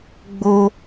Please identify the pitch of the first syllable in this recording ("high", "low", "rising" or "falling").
high